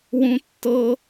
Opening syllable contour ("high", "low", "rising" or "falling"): high